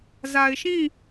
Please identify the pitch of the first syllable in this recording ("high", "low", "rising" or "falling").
low